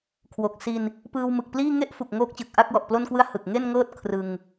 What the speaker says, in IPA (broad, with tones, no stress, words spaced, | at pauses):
kʰwo˨˩k̚si˧n | pɯː˧wmɯ˨˩k̚pliː˥˩ ŋe˥˩ʔfu˨˩k̚ ŋoː˦˥k̚t͡ɕɯ˨˩k̚ ʔa˥˩k̚wɔ˨˩ʔplo˥˩nkwɯ˥˩a̯ hɯ˨˩k̚ŋe˥˩nŋɤː˥˩t̚ kʰrɯ˧ŋ